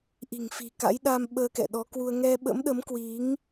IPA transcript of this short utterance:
ʔ i̤˨˩ ŋ f i̤˨˩ k a̰˧˥ j ɗ a˧ m ɓ əː˧ k ɛ̰˧˨ ɗ ɔ˨˦ k w u˧ ə̯ ŋ ɛ˧ ɓ ə̰˧˥ m ɗ ə˨˦ m k w i˨˦ ŋ

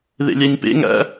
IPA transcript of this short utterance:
ð ḛ lʲ æ ɲ p ḛ ŋ æ̰

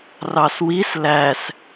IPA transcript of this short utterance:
r ɑ s w i s l æ s

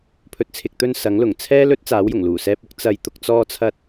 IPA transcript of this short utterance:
pʰ ɵ˨ t̚ t͡sʰ ɪ˨ k̚ t̪ ɵ˧ n s ɐ˨˥ ŋ l ʊ˨˩ ŋ t͡sʰ ɛː˥ l ɵ˥ t̚ t͡s aː˨˥ w j ʊ˨˩ ŋ l uː˨˩ s ɛː˧ p̚ ʊ˥ k̚ t͡s ɐ˨ j t̪ ʊ˧ k̚ t͡s ɔː˧ t͡sʰ ɐ˧ t̚

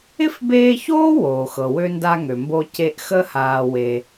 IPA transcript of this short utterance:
ɪ˥ f b eː˦ ç oː˥ w oː˩ x ɤ˩ w ø˦ n d a˦ ŋ ø˩ m b o˦ c e˦ ʔ x ə˥ h aː˨ w e˩

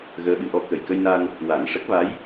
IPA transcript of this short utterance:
ɣ əː˧˥ ɓ ɨ˨˩˦ ʔ ɔ˧˥ k ə˨˩ j k ə˧ j n a˧ n | w a˨˩˦ n ʂ ə˦˥ k̚ v a˧˥ j

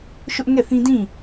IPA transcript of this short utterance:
ʃ ʊ˦ ʔ ŋ ɛ˦˨ θ ĩ˦ d ĩ˦˨

